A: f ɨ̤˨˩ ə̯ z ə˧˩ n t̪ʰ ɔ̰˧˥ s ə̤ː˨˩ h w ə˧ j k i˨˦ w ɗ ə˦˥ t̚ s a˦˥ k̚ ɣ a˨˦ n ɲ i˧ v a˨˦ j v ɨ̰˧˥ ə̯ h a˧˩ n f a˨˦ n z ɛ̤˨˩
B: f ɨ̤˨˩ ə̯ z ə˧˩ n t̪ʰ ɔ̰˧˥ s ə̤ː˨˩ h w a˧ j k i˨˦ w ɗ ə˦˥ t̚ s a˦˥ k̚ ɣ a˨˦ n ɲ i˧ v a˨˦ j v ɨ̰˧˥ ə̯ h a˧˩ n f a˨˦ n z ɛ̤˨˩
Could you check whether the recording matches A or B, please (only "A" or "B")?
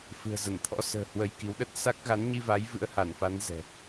A